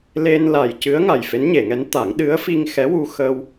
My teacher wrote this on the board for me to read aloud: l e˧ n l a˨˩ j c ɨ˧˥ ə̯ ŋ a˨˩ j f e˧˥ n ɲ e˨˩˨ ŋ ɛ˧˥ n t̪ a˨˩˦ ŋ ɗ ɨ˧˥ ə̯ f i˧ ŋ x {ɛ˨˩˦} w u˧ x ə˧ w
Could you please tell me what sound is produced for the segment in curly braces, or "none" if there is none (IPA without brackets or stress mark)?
ɛ˧˥